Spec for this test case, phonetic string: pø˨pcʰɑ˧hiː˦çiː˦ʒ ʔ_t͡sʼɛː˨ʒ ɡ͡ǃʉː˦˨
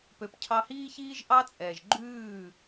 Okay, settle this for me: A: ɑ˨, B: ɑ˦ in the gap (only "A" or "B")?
B